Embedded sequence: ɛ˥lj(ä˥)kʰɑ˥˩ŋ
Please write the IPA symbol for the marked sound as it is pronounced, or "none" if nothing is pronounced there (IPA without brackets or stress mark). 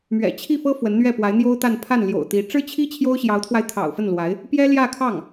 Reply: ä˥˧